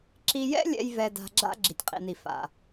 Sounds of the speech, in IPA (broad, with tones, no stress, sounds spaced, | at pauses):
ǁ i˧ j ɛ̰˥ lʲ ɛ̰˧ j v ɛ˧ d a̤˧ ɡ͡ǁ a̰˥ ɡ͡ǁ i˩ tʲ qʼ ḭ˩ n i˩ f a̰˩